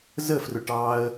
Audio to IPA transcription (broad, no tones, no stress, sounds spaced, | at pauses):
z ə f r ʊ ʈ ɑ ə̯